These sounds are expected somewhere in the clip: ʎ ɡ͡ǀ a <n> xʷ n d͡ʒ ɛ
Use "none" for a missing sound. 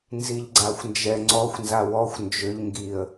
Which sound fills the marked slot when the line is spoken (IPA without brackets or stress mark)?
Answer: none